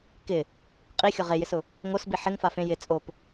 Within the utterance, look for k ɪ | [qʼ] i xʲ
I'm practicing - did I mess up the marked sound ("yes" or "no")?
no